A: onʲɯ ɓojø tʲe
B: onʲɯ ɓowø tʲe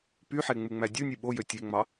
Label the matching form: A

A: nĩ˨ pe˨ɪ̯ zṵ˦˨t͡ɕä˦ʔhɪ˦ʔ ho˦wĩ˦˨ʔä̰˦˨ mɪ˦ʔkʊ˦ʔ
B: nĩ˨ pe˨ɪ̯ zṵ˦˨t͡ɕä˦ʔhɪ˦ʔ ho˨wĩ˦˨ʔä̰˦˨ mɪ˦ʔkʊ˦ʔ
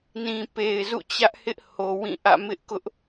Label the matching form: B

